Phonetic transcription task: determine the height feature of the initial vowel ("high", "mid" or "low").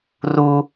high